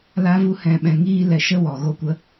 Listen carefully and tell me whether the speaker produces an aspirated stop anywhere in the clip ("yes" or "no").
no